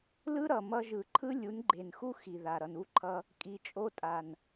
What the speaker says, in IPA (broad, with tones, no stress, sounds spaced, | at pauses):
l ɯ˦ ɾ ʌ˨ m ʌ˧ ʒ ɯ˨ ǃʰ ɯ˦ lʲ u˨˦ n ɡ͡ǃ e˨ n x u˦ x i˨ ð a˨ ɾ ʌ˨ n u˧ ǃʰ ʌ˧ | kʼ i˨ t͡ʃʼ o˧ tʼ a˨ n